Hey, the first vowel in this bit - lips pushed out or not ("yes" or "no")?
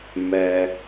no